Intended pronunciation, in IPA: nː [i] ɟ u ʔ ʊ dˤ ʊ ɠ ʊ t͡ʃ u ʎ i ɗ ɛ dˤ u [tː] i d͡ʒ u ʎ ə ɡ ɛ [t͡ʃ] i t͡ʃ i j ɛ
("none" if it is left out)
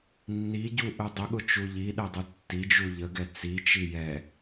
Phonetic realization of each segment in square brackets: i, tː, t͡s

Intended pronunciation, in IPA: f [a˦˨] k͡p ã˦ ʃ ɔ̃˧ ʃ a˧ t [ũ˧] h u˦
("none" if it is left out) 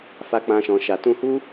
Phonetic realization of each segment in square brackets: a˦, ũ˧

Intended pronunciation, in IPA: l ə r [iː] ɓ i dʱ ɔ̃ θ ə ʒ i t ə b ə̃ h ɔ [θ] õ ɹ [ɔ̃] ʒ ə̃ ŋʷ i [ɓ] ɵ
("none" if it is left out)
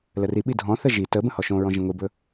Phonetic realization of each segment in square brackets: i, ʃ, ɔ̃, b

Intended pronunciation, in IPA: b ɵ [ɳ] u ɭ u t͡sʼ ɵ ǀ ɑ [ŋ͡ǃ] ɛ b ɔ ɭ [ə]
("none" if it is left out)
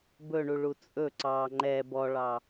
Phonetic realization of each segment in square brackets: ɳ, ŋ͡ǃ, ɑ

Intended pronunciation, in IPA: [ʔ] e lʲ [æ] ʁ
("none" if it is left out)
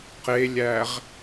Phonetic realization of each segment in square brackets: q, æ

